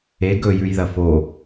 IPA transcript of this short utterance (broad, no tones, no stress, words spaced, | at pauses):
e ɡɵjʉjðɐ fo